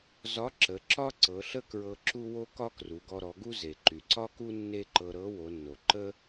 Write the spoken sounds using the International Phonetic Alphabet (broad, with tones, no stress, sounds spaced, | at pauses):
z ɒ˧˥ ǁ ə˩˧ ǁ ɒ˥ ǀ ɤ˩˧ ɬ ə˥ k ɹ ɤ˧ ǁ u˥ w o˥ k ɒ˥ k r u˩˧ ɡ ɔ˧ ɾ ɔ˩˧ ɡ u˥ z e˩ ǃ y˩ ǀ ɒ˥ k u˥ nː e˥ ǃ ɤ˧ ɾ ɤ˧˥ w o˩˧ nː o˩ ǃ ə˥